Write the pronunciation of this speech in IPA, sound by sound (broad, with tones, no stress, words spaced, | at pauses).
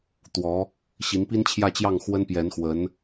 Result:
t̪wɔ˧˥ | ɕi˧˥npi˥nt͡ɕʰjä˥˧t͡ɕjɑ˥˩ŋ xwə˥npjɛ˧˥nxwə˧˥n